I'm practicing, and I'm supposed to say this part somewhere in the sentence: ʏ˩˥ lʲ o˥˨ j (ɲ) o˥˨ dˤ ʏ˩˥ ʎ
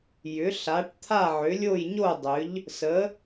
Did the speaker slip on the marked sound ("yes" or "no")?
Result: no